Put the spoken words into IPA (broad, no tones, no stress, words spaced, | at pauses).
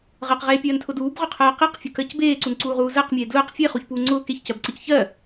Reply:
ʁɜqʁeːpʲɜːntʰʊ duːbʁʊqʰɜː qeqfʲʊkɜc beːǀunǀuːʁuː zɜqmʲeː dlʊːq fʲeχuçpuː ŋ͡ǀʊː keçcɜbǀəc çɜ